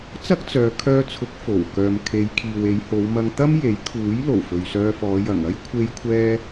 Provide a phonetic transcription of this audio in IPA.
t͡sɐ˥k̚t͡sœː˨˧kʰœː˧t͡sʰʊ˨˥k̚ fo˨˩wkœː˨mkʰe˨˧j kʰiː˨we˨˧jho˨˧wmɐ˧ŋ t̪ɐ˥m je˨˥j kʰuː˨˥j lo˨˩wfɵ˨ɥsœː˧fɔː˨˧ jɐ˨˩ŋɐ˥j kʷʰe˧jkʷʰɛː˧

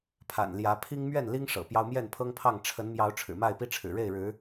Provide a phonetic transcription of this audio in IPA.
pʰa̰˨˩nljä˨˦ pʰi˦ŋmɥɛ˥˨n li˦ŋ ʂɤ̰˨˩pjɑ˦ʊ̯ mjɛ˥˨npʰɤ˦ŋpʰɑ˥˨ŋ ʈ͡ʂʰə˨˦n mjɑ˨˦ʊ̯ʈ͡ʂʰɻ̩˨˩ma˥˨ɪ̯pi˦ ʈ͡ʂʰɻ̩˨˩ɻe˥˨ɪ̯ɻɻ̩˨˦

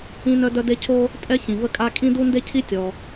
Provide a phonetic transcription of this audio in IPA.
ĩ˥nœ˥dœ˥ de˥ cʰo˥ | tʼɛ˥ çĩ˩və˥kʼa˥ kʼĩ˥du˥nde˥cʰi˥ tʲɔ˩

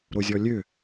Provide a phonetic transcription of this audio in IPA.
ɾozʲɔlʲø

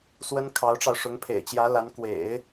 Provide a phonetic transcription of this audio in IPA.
swə˥nkʰɑ˧˥ʊ̯ʈ͡ʂɑ˧ʊ̯ ʂʊ˧˥ŋpʰḛ˨˩ɪ̯t͡ɕjä˧˥la˧˥n kwḛ˨˩˦ɪ̯

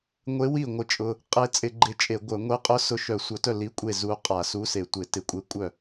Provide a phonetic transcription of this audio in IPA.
ŋʷe˧˥wi˥˩ ŋʷɪ˥˩t͡ʃʼʊ˧˥˧ | qʼe˧˥t͡sʼɪ˧˩˧ ɡ͡ǃɪ˧˥t͡ʃʼe˧˩˧ɡʷœ˧˩˧ ŋʷe˧˥qʼʊ˧˥ sʊ˧˥ʃœ˧˩˧ sʷœ˧˩˧tœ˥˩ li˧˥˧kʷʼe˥˩ zu˧˥ qʼa˧˩˧su˧˥˧se˧˩˧ tʷɪ˧˩˧tɪ˧˩˧kʷʼe˧˥ kʷʼœ˥˩

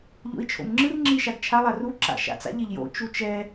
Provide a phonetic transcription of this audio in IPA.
ʎo̰i̯t͡ʃʰo̰mŋ͡ǁɯr ŋ͡ǁiʃaɡt͡ʃʰa lˠaru ǁa̰ʃa̰t͡sa̰ʎ eʎjo̰ t͡ʃut͡ʃɛ

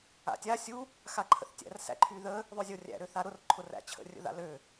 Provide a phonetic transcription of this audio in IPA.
a̰tʲa sʲu | xaǃʰə̰θtʲæ̰r sæ̰ǃʰyðə | ðˤøzʲorʲæ̰ ɾøθaɾʊr ǃʰʊræ̰t͡ɕʰə̰ rʲə̰ða̰lø

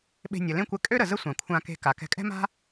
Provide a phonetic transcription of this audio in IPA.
ɓe̤˧nʲə˩lẽ˥kʷɛ˧ kʼø˥ɾə˩ zə˥sʷã˩kʷʰã˧ke̤˧ ka˩kɛ̤˧kʼɛ̤˥ma̤˥

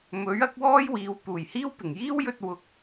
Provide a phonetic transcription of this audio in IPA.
mɵ˨˥ɥɐ˨˥k̚wɔː˥jwiː˨˧w t̪uː˨˩jhiː˥wpɪ˨˩ŋ jiː˥wjɵ˧t̚ wʊ˨˥k̚

